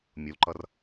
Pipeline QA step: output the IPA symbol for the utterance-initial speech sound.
mʲ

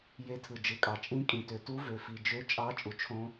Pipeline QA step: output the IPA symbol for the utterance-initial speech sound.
j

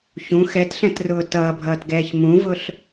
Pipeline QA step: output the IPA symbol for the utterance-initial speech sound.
ç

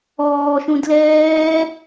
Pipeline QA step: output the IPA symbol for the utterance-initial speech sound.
ɔː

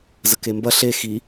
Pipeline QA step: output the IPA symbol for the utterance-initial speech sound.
z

